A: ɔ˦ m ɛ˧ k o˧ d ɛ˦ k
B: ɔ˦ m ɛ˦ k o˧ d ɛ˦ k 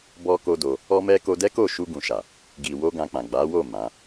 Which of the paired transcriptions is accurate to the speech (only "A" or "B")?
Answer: B